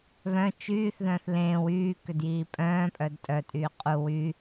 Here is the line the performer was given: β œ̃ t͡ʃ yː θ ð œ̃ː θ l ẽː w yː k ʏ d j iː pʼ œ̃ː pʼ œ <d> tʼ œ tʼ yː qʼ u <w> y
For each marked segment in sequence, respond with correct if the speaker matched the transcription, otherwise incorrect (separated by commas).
correct, correct